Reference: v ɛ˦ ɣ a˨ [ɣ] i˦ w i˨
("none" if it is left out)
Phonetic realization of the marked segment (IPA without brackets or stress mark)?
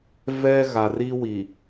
r